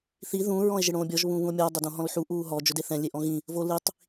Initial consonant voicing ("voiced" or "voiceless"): voiceless